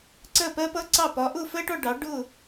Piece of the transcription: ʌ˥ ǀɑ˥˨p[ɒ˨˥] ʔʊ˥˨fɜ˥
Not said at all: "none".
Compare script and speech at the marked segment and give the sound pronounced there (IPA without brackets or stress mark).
ɒ˨˥